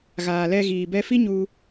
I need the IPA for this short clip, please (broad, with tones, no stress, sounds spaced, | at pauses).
ɣ aː˨ l ɛ˧ ɣ iː˨ b ɛ˧ f i˦ ɲ u˧